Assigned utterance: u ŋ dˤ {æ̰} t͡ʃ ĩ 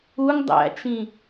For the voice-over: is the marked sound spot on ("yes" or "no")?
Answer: yes